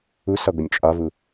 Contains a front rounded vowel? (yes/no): no